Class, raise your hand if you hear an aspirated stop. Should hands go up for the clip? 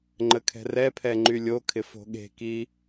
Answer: yes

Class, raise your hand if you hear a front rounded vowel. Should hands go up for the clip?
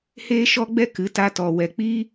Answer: no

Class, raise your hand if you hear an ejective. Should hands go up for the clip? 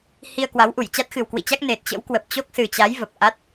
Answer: no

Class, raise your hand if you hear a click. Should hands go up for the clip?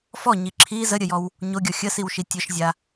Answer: yes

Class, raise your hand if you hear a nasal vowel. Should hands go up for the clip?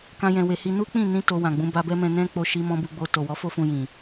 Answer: yes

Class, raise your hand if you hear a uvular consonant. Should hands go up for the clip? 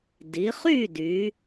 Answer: yes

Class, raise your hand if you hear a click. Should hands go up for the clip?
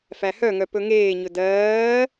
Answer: no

